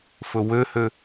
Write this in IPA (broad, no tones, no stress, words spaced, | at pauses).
fɵwøhø